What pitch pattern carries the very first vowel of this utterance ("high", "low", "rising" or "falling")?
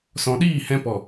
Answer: low